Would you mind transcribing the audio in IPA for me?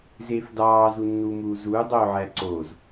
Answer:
z eː f d ɑː z u nː uː m uː z uː dˤ oː ʕ æ ǀ oː z

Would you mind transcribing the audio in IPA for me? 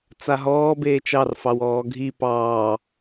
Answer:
t͡s a ɦ ɔː b eː t͡ʃ ɑ r f ɑ w ɔː ɡʱ i p ɑː

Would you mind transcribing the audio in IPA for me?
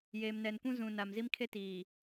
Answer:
j eː˨ m n ɛ˨ n kʷ ũ˦ z ũ˨ n a˨ m z i˦ m kʰ e˦ t iː˨

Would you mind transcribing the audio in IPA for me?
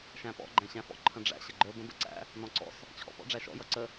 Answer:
ʃ æ̃ p ɔ̰ ɡ͡ǃ æ̃ ɕ æ̃ f ɔ̰ ǃʰ ə̃ ɖ͡ʐ æ̰ ɕ ə ɡ͡ǃ ə˞ b ə̃ b ə̰ ǀ æ̰ | n ɔ̃ ǀ ɔ̰ s | t͡ɕʰ ɔ̰ p ɔ̰ ɖ͡ʐ æ ʃ ɔ̰ j ʌ ǀ ə

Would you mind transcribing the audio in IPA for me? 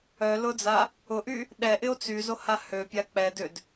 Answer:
œ l ʊ d͡z a | ʊ ʔ y | ɗ ɛ ʔ ɪ o̯ t͡s y z o h a h ø pʲ a k͡p ɛ d ʏ d

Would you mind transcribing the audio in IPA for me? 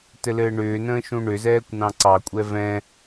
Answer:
t ɘ l ɘː ɳ ʏː n ə̃ː ʃ ũ ɳ ʏ z ɛː kʷ n ɑ̃ ǀ ɑ kʷʼ ɛ v ɛ̃

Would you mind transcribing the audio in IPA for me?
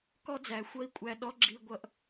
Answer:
k ɔ˦ d͡z æ˨ xʷ ʌ˦ i̯ kʷʼ æ˧ ɗ ɔ˦ ɡ͡ǁ i˧ ɡʷ ʌ˧ ʔ

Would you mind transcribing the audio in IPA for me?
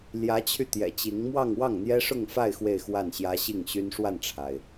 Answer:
l j ä˧˥ t͡ɕʰ y˧ t̪ j ɛ̰˨˩ t͡ɕ i˧˥ ŋ m w ɑ˥˧ ŋ w ɑ˥˩ ŋ n̪ j ɛ˥ ʂ ʊ˥˧ ŋ f a˥˧ ɪ̯ x w e˥˧ ɪ̯ x w a˥˩ n ɕ j ä˥ ɕ i˥˩ ŋ ɕ y˥ n ʂ w a˥˩ n ʈ͡ʂʰ a˩ ɪ̯

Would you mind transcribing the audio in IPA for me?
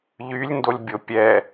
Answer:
ʎ y lʲ n d o lʲ bʲ o pʲ ɛ

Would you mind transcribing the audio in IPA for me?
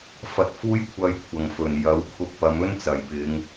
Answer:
f ɐ˧ t̚ f uː˥ j kʷʰ ɐ˧ j kʷʰ ɐ˨˩ ŋ f ɵ˨˩ n j ɐ˨˥ w kʰ ʊ˧ k̚ p ɐ˨˧ m ɵ˥ n t͡s ɐ˨˩ j p ɪ˨˧ ŋ

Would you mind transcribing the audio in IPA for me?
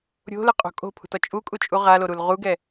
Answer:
ɾʲ o̤ l ɯ qʼ o̤ kʼ o̤ pʰ ṳ t ɔ t͡ʃʼ u kʼ u t͡ʃʼ u ʁ a l o ɾ u l ʁ u ɡ ɛ

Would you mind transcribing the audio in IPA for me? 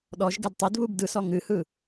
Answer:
ɗ ɔ ʒ ɡ ɛ d tˤ e d β u b d ɯ s ɔ ŋ ɨ h ɯ

